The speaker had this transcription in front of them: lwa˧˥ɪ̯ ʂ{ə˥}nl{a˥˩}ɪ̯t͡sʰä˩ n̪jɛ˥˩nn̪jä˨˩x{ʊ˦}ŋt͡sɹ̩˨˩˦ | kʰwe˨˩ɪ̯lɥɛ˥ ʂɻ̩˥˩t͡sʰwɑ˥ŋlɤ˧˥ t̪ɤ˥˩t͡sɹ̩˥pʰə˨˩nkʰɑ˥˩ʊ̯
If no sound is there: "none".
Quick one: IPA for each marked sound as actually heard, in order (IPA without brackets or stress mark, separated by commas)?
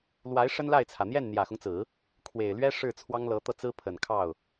ə˥, a˥˩, ʊ˦